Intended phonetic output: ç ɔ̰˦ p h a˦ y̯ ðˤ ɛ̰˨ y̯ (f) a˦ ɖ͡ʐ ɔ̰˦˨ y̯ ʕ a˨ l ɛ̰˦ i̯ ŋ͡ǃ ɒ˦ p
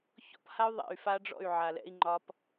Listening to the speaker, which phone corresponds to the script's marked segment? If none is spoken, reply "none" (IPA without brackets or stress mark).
f